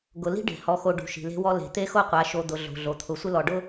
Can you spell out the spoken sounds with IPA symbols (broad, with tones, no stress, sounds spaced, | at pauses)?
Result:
ɡ ʊ˨ l i̤˦ ɖ e̤˨ h ɔ˨ x o˨ ɖ ṳ˨ ʃ i̤˨ l e̤˦ w ɔ˦ l e̤˨ t̪ e˦ x o˦ qʷ a˨˦ ʃ o˨ d̪ ʊ˨ ɮ o̤˨ ɮ o˨ t̪ʰ ʊ˨˦ sʷ ɪ˦ l ɔ˨ ɖ ʊ˦